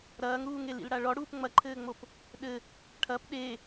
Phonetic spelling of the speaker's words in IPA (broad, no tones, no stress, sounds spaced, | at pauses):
ɾ ɐː ŋ ɾ uː ŋ e l ḭ l ɽ a ɭ ɔ ɽ uː p ŋ͡m ɐ ǃʰ ɘː ŋ͡m o p | ɗ ɘ | ʈʰ ɐ p ɗ e